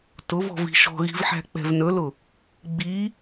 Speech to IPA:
t ʊ v ɔ̤ v i̤ ʃ ɔ̤ ɣ i̤ v ħ æ̤ k͡p ɛ̤ v n ɵ l ʊ | ɡ͡b i

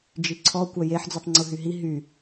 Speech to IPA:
d͡ʒ i ǀʰ ɔ kʷ œ j e ħ d͡z u tˤ ŋ͡ǀ u ɦ y ɦ i ɦ y

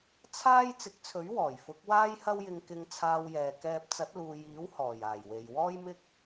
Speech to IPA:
t͡sʰ aː˥ j t͡s ɪ˨˥ k̚ t͡sʰ ɵ˨˥ ɥ w ɔː˨˩ j f ʊ˨˥ k̚ w aː˥ j h ɐ˥ w j ɪ˧ ŋ k ɪ˧ ŋ t͡sʰ aː˧ w j ɛː˨ k ɛː˧ p̚ t͡s ɐ˨˥ t̚ l uː˨ j iː˨˥ w h ɔː˨˩ j aː˨˩ j w e˨ j w ɔː˥ j m ɪ˥ k̚

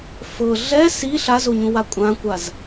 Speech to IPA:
f ɤ ɮ ɛ s i ɬ a z o ɲ ũ w a kʷʼ ã kʷ a z

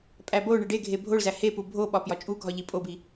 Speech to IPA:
pʼ æ b o ɳ e ɖ e ɡʱ e bʱ o ɭ z æ h e p u bʱ o ɓ ɒ p j ɒ t͡ʃʼ u ɡʱ ɒ ʎ i pʼ o b i

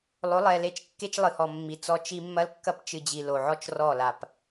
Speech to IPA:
lˠ o˨˦ lˠ ɛ˨ l e˦˨ t͡ʃ kː e˦ t͡ʃ lˠ ɨ˨ h ɔ˨ mː i˨ t͡s ɔ˦ t͡ʃ i˦ mː ɐ˦ l kː ɐ˦ p t͡ʃ ɨ˨ d͡ʑ i˨ l o˨ ʕ ɔ˦ t͡ʃ r ɔ˦˨ l a˨ p

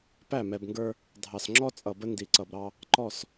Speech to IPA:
p æ˦˨ m ɛ˨ b ŋ ɡ ə˞˦ | dʱ ɑ˨ s ŋ͡ǁ ɔ˦ t͡sʼ ʌ˨ b ə˦ n d i˨ ǀ ʌ˨ b ɾ ɑ˦ | ǃ ɔ˦˨ s

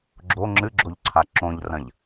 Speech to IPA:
ɡ͡ǁ o ŋ͡ǁ ɨ ɡ͡ǁ o ʎ ǀʰ a ǁ õ ʎ r ɐ̃ ʎ

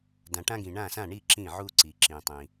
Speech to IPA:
d ã˩ ʈ ã˧ ɡ ĩ˩ ɳ ã˧˩ s ã˧˩ ɳ i˧˩ ǁ ĩ˧˩ ʕ u˧ ǀ i˩ ǁ ĩ˩ tˤ ĩ˩

